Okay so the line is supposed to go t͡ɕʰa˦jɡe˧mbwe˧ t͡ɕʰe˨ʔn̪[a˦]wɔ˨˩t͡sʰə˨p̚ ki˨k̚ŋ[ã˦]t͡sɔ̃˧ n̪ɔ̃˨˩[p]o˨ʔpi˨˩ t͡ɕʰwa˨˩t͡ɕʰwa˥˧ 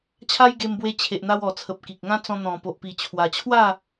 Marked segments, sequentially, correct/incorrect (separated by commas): incorrect, correct, correct